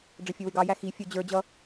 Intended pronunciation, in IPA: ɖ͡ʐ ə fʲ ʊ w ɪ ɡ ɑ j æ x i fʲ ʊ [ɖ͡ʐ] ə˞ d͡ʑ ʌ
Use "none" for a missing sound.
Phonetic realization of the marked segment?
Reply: d͡ʑ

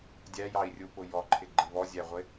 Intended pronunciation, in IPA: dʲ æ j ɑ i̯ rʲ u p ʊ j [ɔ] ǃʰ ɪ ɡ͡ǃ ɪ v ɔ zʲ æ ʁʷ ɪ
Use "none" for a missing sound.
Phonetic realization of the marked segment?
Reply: ɔ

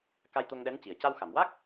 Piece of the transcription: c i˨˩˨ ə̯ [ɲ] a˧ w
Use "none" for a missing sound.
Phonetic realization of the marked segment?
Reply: c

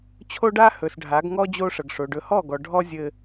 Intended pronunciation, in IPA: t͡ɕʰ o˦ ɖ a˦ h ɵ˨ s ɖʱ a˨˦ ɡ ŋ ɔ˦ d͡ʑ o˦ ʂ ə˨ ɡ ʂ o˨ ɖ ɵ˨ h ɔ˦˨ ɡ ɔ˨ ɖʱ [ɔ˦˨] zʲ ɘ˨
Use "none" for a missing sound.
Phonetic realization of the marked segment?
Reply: ɔ˦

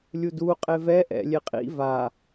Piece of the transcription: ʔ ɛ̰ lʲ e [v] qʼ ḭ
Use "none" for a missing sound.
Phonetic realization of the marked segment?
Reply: none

